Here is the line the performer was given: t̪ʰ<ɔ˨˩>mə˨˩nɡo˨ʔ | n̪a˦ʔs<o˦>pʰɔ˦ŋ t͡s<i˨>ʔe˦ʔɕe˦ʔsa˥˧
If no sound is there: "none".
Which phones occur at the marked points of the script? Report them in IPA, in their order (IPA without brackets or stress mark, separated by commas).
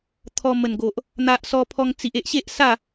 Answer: ɔ˧, ɔ˦, i˨